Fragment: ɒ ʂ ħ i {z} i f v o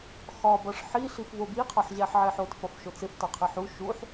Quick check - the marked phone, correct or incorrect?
incorrect